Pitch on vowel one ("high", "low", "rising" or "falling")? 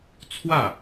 falling